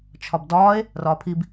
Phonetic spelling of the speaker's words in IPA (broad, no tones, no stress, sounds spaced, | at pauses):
t͡ʃʰ ɒ b d ɒː e̯ | r ɒː pʰ i b